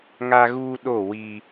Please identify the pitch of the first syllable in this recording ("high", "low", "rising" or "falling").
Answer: high